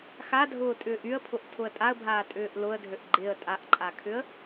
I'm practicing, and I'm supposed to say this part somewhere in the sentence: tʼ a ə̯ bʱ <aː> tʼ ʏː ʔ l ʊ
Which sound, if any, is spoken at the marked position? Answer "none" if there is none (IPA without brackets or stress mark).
aː